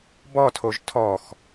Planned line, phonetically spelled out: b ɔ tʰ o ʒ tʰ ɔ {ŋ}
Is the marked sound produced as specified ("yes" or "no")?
no